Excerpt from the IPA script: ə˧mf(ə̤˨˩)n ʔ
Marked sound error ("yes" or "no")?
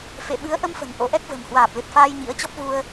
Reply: no